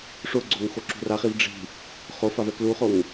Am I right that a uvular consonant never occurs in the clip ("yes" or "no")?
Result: no